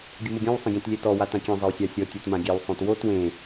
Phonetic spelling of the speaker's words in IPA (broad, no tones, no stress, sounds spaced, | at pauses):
ɡʲ ʊ m ʊ ɡʲ ɔ̃ w sˤ ẽ ɡʲ ã t lʲ e t ɔ w a t ã kʲ ẽ zˤ e w sʲ a sʲ ɔ tʲ e t m ã ɡʲ ɛ w sˤ õ t w o t w ẽ